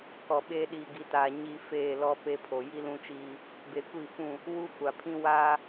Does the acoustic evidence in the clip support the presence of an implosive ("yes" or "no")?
yes